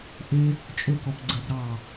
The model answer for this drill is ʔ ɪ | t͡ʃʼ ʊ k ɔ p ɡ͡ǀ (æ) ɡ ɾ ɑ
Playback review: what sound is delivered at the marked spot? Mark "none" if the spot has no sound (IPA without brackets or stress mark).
ə